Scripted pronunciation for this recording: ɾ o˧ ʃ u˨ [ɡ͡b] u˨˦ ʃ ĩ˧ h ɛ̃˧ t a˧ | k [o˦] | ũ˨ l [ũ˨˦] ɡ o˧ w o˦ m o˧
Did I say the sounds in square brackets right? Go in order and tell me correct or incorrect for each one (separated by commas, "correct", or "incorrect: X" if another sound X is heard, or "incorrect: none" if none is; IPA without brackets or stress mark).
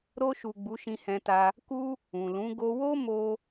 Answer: correct, incorrect: u˦, correct